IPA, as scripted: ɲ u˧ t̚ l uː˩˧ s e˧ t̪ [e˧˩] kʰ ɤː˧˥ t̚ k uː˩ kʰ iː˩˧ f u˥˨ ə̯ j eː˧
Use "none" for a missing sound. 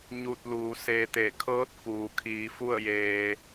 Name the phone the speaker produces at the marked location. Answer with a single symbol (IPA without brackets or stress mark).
e˧˩